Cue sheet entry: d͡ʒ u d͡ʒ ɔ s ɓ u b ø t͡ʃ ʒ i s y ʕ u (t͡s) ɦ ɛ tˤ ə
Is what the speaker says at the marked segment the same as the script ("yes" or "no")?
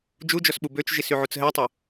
yes